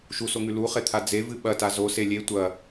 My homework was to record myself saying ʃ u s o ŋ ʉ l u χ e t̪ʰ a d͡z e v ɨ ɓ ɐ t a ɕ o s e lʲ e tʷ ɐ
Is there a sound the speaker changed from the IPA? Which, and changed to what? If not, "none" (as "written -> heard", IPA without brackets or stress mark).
ɕ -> z